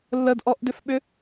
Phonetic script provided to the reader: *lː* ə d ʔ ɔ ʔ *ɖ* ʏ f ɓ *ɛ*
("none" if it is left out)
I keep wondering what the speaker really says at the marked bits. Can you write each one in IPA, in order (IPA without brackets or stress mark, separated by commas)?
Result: lː, d, ʏ